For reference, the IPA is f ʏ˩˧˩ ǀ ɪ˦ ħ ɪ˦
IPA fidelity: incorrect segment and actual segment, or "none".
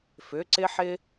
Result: none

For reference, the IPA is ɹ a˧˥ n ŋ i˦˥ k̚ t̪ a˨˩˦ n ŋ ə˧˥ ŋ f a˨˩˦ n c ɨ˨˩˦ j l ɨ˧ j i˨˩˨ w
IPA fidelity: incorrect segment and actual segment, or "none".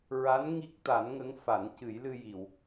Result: none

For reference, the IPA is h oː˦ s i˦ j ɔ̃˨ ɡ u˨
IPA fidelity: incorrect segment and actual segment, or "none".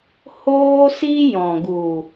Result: none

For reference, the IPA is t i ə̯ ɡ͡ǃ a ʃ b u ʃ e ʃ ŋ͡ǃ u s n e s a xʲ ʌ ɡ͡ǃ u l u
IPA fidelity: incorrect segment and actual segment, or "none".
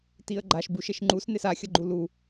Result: none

